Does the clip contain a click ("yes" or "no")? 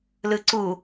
yes